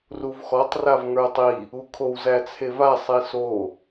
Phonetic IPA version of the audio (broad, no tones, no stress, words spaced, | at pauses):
ruvxɔtˤ ravŋə˞tˤi | ukʰow zæt͡sʰeva sˤiso